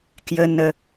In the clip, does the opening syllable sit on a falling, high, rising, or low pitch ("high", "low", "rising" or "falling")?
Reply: low